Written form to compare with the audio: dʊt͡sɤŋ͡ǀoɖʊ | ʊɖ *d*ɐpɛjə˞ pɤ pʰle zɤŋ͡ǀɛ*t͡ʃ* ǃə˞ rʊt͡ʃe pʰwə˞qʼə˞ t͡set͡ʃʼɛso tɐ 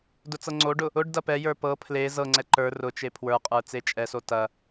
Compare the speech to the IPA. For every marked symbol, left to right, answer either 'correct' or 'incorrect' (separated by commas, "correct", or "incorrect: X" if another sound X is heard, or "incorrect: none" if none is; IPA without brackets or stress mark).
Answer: correct, incorrect: none